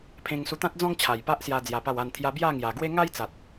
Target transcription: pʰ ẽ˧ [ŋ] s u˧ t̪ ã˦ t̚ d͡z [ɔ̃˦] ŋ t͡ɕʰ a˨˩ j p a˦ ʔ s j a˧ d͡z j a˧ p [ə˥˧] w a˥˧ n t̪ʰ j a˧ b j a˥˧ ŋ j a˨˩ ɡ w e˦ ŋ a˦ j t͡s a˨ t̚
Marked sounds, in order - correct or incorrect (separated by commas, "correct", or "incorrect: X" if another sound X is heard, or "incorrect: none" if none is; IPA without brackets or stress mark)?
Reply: correct, correct, incorrect: a˥˧